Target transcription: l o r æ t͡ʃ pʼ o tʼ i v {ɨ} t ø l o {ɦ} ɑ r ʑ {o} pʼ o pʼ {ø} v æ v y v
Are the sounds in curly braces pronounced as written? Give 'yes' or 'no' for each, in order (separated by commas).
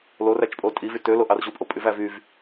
no, no, no, no